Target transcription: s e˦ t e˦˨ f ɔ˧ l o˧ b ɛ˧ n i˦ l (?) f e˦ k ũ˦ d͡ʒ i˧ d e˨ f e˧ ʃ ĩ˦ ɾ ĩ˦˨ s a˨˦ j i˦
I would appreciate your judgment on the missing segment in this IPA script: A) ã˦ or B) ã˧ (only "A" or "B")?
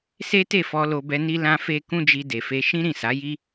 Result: A